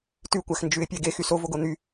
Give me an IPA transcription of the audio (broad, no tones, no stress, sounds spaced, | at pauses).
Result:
t ʉ kʷ æ x n d͡ʒ ʉ ɪ̯ pʲ ɛ ɡ e x y s o v o ɡ o n̪ y